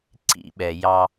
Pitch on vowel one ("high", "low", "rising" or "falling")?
high